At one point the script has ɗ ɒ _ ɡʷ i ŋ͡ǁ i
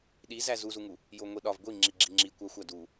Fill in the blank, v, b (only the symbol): v